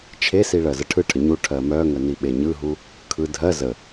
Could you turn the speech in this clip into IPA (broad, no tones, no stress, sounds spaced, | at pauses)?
t͡ʃʰ e s i ɭ ɜ z ə ʈʰ ɯ ʈʰ ə ɲ u ʈʰ ɜ m œ ŋ ə n i ɓ e ɲ ɯ ɦ u | kʰ ɯ dʱ ɜ z ə